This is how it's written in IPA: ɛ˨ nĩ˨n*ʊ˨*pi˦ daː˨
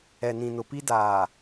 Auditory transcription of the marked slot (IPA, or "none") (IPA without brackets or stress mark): ʊ˨